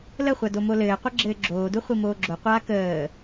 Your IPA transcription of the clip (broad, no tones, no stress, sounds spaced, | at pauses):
l ə χʷ a d o m o l ɘː qʷ ə ɡ͡ǁ ɘː ɡ͡ǁ oː d u χʷ i m oː ɡ͡ǁ o qʷ aː k əː